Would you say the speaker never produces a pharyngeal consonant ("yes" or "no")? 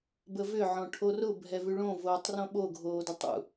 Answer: no